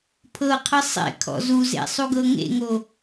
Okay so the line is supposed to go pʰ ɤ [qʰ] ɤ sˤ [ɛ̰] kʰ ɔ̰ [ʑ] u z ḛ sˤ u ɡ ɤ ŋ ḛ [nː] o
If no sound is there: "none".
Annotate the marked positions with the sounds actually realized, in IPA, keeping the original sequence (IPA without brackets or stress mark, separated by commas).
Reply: qʰ, ḛ, z, ŋ